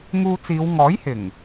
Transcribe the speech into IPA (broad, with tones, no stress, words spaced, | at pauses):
ŋuː˧t͡siː˨˧w ŋɔː˨˥jhɪ˨˩ŋ